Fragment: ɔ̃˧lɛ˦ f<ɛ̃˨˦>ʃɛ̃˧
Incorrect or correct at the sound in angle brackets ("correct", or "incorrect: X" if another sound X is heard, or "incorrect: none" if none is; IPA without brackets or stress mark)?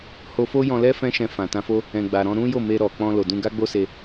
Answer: incorrect: ɛ̃˦